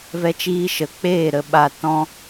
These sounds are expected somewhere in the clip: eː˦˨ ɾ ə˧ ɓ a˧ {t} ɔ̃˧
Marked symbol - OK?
yes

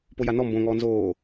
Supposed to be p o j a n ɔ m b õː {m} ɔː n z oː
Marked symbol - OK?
no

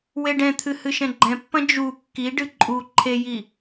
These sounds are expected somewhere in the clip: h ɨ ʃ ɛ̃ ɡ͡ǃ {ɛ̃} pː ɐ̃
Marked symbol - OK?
yes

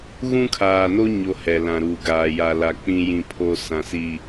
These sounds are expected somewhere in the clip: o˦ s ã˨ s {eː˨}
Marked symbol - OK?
no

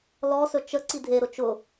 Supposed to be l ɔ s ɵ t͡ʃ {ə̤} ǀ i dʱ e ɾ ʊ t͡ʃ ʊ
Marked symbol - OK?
no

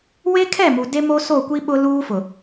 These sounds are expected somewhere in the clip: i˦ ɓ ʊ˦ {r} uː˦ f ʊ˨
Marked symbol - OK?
no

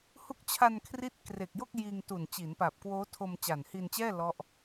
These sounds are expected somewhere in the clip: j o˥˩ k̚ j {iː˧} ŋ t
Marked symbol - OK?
yes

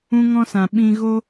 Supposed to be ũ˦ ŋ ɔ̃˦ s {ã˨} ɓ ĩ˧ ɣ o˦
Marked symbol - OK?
yes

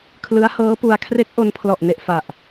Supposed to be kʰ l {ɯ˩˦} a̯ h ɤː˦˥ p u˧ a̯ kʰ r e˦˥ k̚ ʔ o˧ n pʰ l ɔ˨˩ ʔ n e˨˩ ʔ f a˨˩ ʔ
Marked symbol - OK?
no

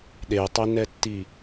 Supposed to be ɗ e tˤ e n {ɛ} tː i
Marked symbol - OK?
yes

